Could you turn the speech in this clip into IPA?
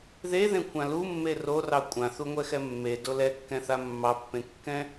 ðeðẽkʷʰã lumːe rorɑ kʷʼãθuŋʷɛxɛ mːedo lɛkːɛ̃θa mːɑpːẽkːɛ̃

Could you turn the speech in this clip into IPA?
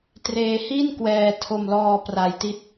treː˧hi˥˩nkwɛː˧ tʰo˧mlɔː˧ pra˧jti˦˥t̚

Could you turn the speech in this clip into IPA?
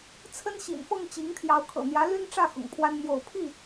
t͡sʰə˦nɕḭ˨˩nfɤ˥˨ŋ t͡ɕi˨˦ŋt̪ʰjɑ˨˦ʊ̯ kʰɤ̰˨˩n̪jä˨˦ ly˦nʈ͡ʂä˥˨ xʊ̰˨˩ŋpʰwa˦nn̪jo˥˨ʊ̯ pʰi˥˨

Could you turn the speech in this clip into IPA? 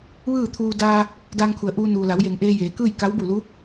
ʋɯː˥˨t̪ʰuː˧ daː˧ | daː˧ŋkʰu˩ə̯ ʔuː˧nuː˩ la˩˧wje˩ŋʔeː˧ jeː˩˧kɯː˥˨j ka˧˥wbu˧˩lu˧˥

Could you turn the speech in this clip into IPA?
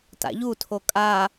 ta̰ʎutʰo kʼa

